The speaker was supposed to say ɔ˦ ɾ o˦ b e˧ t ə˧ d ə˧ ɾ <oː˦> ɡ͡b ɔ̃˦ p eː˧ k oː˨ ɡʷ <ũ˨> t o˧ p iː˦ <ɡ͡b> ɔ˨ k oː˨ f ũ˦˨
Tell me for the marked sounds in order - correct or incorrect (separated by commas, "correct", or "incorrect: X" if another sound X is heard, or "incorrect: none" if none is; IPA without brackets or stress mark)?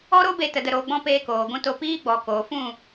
incorrect: oː˧, incorrect: ũ˧, correct